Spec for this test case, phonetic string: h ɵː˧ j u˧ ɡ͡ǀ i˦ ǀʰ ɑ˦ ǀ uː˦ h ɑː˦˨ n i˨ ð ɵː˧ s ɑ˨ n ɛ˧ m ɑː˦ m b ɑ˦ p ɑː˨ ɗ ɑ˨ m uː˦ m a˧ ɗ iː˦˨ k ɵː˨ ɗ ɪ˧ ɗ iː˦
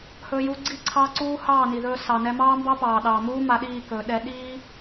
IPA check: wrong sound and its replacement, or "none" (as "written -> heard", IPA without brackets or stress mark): ɪ˧ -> ɛ˧